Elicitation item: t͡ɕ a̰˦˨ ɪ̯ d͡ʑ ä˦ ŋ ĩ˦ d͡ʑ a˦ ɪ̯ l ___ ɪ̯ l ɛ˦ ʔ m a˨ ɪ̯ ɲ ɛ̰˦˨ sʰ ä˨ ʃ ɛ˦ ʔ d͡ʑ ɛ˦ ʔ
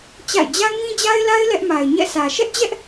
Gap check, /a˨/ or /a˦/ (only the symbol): a˦